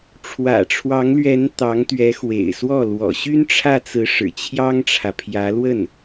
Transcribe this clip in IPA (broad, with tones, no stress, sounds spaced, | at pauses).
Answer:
ʈ͡ʂʰ w ä̰˨˩ ʈ͡ʂʰ w ɑ˧˥ ŋ l ɥ ɛ˧˥ n t̪ ɑ˧˥ ŋ t̪ ɥ ɛ˧˥ x w ḛ˨˩ ɪ̯ s w ɔ˥˩ l w ɔ̰˨˩ ɕ y˥ n ʈ͡ʂʰ ä˥˩ t͡s ɹ̩˧˥ ʂ ɻ̩˨˩ t͡ɕʰ j ɑ˥ ŋ ʈ͡ʂʰ ä˨ pʰ j ä˧˥ l w ə˥˩ n